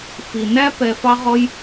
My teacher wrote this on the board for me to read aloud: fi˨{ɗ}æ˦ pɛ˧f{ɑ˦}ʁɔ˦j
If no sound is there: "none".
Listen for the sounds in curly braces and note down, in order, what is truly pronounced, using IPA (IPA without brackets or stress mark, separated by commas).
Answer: n, ɑ˦